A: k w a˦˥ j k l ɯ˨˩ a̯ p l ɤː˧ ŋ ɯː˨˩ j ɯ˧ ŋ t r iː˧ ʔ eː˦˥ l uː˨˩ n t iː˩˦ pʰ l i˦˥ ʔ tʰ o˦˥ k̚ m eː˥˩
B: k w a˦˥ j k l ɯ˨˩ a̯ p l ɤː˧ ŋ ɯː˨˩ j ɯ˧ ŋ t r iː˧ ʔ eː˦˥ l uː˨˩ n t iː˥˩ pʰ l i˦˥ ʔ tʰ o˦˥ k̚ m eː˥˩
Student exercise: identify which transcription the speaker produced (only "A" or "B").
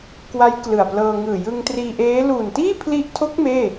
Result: B